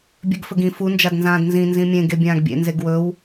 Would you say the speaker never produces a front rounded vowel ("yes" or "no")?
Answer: yes